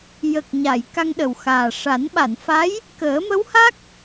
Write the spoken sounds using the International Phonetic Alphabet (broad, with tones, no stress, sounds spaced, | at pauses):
j ə˨˩ k̚ ɲ a˨˩˨ j k a˧ ŋ ɗ ə˨˩ w x aː˨˩ ʂ a˨˩˦ n ɓ a˨˩˨ n f a˧˥ j | k əː˨˩˦ m ə˧˥ w h a˦˥ k̚